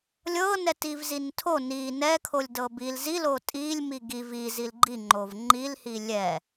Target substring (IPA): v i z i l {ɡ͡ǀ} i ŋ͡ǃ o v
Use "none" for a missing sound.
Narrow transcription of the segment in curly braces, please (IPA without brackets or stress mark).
ɡ͡ǃ